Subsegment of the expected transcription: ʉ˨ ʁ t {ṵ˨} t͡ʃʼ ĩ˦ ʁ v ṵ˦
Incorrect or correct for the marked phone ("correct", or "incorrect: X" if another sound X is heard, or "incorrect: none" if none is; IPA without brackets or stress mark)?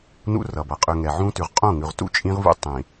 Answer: incorrect: ṵ˦